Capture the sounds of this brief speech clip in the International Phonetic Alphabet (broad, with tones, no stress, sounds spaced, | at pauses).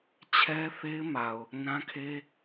t͡ɕʰ ɛ˦ θ e˦ ɪ̯ m a˨ ʊ̯ | n ã˦ kʰ e˦